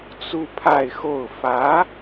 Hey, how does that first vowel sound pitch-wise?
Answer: high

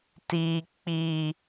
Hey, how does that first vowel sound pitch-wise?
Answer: low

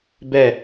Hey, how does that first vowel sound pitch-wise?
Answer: falling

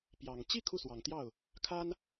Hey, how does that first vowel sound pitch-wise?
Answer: low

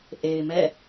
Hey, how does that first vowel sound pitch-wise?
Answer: low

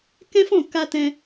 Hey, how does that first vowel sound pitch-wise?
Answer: high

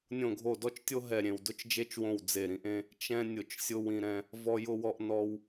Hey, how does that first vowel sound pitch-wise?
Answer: low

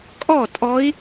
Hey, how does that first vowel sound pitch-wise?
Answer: falling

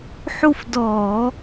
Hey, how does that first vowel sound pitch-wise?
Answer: falling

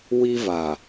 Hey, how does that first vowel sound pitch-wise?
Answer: high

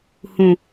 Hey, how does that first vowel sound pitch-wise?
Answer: low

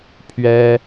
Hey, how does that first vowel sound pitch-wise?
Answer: high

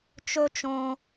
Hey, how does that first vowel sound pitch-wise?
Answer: high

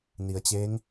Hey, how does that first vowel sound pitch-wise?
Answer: low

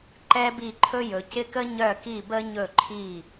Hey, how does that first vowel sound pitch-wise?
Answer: high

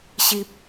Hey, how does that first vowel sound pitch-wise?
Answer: low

